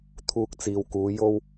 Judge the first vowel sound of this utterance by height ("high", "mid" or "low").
high